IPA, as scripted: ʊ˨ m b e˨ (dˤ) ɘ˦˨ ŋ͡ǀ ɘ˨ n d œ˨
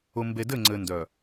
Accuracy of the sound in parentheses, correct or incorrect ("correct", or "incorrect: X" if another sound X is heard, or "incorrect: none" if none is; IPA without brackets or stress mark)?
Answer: incorrect: d